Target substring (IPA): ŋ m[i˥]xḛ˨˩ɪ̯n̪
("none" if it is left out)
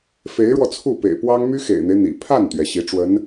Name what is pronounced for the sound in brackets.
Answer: y˥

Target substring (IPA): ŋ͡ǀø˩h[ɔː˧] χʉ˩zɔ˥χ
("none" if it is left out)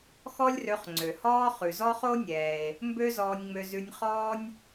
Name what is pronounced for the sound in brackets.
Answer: ɔː˥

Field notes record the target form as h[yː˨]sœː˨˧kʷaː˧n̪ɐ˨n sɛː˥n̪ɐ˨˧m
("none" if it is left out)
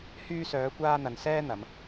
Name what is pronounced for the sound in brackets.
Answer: yː˧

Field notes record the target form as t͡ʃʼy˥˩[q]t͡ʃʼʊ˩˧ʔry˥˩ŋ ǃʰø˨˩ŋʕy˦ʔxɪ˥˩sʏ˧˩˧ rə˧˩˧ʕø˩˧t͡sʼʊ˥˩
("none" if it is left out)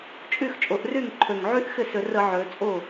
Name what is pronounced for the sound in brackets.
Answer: x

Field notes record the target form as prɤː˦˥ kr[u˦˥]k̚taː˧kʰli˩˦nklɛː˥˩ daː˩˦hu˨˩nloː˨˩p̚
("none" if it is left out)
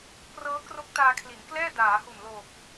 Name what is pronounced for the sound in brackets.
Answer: o˦˥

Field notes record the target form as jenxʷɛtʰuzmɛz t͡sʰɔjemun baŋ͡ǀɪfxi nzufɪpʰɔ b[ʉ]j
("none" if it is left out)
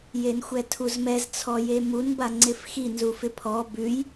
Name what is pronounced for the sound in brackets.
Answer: ʉ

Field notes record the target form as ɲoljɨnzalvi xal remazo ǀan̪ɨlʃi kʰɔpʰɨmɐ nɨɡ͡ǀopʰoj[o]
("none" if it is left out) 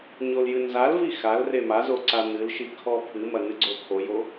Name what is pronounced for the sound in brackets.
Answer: o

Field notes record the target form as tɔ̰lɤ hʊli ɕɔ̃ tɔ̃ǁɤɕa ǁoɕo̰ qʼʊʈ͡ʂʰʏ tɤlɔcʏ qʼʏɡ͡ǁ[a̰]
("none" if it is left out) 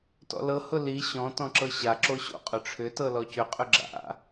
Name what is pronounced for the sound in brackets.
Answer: a̰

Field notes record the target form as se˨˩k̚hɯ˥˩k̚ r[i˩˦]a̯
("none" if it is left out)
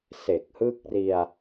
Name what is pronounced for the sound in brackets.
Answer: i˧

